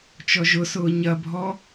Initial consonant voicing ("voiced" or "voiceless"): voiceless